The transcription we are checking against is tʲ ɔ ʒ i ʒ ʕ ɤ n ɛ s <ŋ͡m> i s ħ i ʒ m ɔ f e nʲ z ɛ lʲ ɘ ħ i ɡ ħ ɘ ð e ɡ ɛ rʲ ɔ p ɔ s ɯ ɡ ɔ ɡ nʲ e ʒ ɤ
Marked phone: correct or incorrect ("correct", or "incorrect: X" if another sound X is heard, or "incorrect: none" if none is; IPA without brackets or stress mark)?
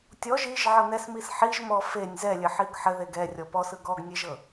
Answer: incorrect: m